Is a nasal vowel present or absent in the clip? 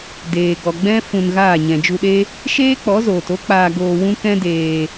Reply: present